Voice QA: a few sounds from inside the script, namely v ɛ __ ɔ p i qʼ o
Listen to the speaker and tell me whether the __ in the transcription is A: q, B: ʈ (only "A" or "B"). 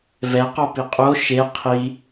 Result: A